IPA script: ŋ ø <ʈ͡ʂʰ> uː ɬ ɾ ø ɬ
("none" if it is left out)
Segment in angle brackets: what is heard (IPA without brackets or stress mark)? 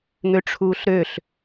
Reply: ʈ͡ʂʰ